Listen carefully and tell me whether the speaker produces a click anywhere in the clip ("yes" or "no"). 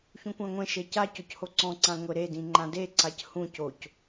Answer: yes